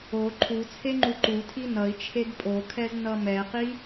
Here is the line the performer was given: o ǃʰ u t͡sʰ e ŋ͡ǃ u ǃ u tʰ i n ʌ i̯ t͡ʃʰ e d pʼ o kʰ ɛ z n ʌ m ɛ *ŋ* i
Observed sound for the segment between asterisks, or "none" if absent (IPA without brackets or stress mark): q